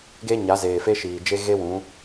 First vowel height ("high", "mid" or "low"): mid